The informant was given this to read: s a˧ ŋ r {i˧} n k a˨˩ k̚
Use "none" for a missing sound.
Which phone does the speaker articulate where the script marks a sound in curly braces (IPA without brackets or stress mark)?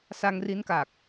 i˦˥